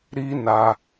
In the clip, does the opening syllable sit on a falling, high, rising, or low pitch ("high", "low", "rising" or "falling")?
high